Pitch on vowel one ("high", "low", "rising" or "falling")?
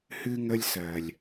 high